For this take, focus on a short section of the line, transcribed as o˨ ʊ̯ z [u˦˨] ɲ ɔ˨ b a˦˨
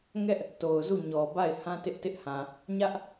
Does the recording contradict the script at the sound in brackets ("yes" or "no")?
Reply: no